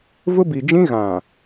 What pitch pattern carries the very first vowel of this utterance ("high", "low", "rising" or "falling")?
high